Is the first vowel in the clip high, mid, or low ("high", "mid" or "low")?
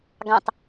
low